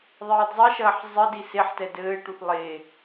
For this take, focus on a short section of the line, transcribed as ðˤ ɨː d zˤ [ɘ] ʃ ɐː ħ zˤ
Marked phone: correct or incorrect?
correct